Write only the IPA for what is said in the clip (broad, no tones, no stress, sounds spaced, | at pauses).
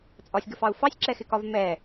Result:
t͡sʼ ɒ sʲ ɡ ə f ɑ u̯ f ɑ sʲ ǁ ɛ x ɪ k ɒ v m ɛ